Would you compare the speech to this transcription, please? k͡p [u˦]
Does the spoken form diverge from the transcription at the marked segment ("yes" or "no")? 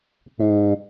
yes